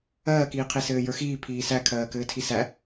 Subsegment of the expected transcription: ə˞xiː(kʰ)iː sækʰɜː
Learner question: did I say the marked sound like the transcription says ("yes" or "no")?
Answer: no